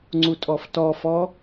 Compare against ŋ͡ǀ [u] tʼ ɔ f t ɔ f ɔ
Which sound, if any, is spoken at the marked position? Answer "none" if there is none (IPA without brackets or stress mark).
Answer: u